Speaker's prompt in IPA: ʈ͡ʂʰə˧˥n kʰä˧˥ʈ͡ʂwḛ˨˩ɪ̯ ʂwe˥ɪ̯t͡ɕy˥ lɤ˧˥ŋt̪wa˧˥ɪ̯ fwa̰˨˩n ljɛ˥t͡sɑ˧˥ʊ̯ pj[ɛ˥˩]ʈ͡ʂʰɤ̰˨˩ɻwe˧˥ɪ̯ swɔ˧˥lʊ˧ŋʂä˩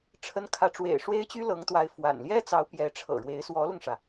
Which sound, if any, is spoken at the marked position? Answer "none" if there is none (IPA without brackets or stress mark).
ɛ˧˥